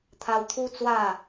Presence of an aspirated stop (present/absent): present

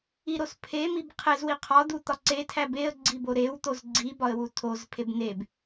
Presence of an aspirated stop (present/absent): present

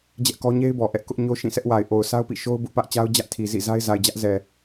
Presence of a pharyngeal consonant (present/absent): absent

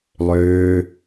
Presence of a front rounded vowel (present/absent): present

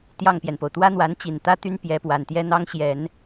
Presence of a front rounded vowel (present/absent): present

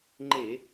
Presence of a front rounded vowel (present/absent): absent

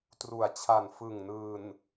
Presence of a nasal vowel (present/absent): absent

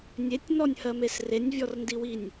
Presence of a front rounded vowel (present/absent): absent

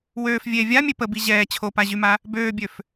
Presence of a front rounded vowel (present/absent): present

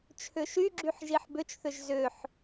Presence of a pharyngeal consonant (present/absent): present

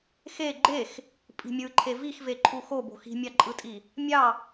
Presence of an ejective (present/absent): present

